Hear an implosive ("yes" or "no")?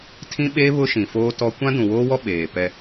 yes